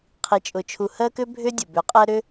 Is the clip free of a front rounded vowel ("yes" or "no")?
no